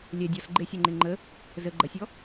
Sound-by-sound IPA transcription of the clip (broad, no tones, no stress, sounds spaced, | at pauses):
lʲ ɛ dʲ ɔ s ɡ͡ǃ e sʲ ɛ ŋ͡ǃ e ŋ͡ǃ ə | z ə ɡ͡ǃ ɐ sʲ ɔ